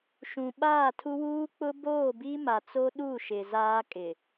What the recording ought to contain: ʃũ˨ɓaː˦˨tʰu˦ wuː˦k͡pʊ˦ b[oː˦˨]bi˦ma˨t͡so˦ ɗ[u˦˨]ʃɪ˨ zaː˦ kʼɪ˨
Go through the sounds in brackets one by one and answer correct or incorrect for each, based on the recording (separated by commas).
correct, correct